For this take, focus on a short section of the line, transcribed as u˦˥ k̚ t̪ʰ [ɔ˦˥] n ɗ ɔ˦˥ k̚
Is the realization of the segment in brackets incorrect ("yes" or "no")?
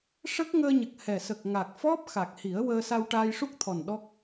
yes